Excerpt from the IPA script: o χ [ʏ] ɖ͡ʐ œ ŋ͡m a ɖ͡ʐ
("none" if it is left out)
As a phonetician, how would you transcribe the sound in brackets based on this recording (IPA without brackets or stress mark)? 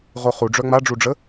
u